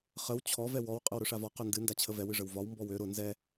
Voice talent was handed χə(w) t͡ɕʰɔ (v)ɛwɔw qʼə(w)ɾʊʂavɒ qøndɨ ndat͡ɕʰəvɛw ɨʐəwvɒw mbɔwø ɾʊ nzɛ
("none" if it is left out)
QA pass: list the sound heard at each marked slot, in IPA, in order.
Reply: w, v, w

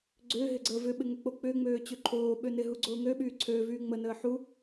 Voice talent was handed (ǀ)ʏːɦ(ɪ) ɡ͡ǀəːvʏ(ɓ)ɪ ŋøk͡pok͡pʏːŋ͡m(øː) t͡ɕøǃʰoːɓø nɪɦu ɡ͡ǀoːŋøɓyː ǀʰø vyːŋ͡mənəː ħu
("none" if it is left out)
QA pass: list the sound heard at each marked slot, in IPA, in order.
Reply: ɡ͡ǀ, ɪ, ɓ, øː

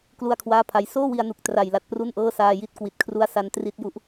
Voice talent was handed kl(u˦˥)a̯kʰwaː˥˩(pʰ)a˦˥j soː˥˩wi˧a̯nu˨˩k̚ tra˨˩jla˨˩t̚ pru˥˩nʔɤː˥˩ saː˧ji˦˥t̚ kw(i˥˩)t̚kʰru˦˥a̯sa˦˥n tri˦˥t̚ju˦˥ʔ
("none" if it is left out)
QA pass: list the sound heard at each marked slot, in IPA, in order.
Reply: u˥˩, pʰ, i˨˩

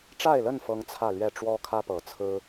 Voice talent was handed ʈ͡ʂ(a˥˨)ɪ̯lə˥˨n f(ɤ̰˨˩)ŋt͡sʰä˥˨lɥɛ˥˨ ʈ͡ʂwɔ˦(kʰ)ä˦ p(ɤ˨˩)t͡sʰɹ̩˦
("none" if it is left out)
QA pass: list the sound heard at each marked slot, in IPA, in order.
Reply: a˥˨, ɤ˦, kʰ, ɤ˨˩

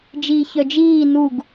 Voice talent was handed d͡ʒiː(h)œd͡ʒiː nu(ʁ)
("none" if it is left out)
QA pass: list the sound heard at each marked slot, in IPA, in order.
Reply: ç, ɡ

